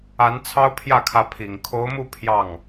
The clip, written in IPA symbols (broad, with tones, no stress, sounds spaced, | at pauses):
a˧˥ n t͡sʰ ɑ˥ ʊ̯ pʰ j ä˥˩ kʰ ä˧˥ pʰ i˨˩ ŋ kʰ o˧˥ ʊ̯ m u˥˧ pʰ j ɑ˥˩ ŋ